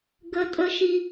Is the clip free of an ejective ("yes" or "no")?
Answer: no